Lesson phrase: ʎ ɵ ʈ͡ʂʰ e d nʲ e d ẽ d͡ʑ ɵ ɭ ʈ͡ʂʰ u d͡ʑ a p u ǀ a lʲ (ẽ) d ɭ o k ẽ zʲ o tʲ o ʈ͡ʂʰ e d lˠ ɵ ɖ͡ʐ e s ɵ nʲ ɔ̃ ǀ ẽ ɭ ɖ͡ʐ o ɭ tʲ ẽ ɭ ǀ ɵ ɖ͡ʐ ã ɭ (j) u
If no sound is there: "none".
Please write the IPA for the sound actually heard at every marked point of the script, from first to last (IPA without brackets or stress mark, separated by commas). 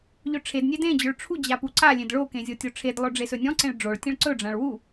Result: ẽ, w